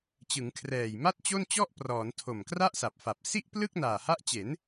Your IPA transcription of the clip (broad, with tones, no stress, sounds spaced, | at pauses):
t͡ɕ ɯ˩˦ ŋ kʰ r ɛː˨˩ j m a˥˩ t̚ t͡ɕ o˥˩ n t͡ɕ ɔ˥˩ ʔ p r ɔː˩˦ n tʰ o˨˩ m k r a˥˩ ʔ s a˨˩ p̚ f a˨˩ p̚ s i˥˩ ʔ p l ɯ˥˩ k̚ n aː˨˩ h a˦˥ ʔ t͡ɕ e˩˦ n